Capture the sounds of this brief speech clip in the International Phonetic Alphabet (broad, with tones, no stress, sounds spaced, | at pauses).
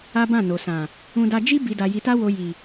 a˦ b ã˦˨ n o˨ s ã˨ | ũ˧ d a˧ d͡ʒ i˦ b i˧ d a˧ j i˧ t a˦ w o˧ j i˨